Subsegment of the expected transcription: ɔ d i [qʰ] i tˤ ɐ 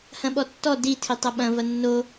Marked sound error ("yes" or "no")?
yes